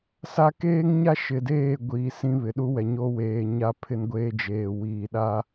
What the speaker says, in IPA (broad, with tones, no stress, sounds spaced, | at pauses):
s a˦ k eː˦ ŋ ɲ a˦ ʃ ɪ˨ d eː˦˨ ɡʷ iː˨ s ĩ˦ β ɪ˨ ɗ u˦ w ɛ˨ ɲ o˦ w eː˨ ɲ a˦ pʰ ɪ˦ n ɡʷ eː˦ d͡ʒ eː˨ w iː˨ ɗ a˦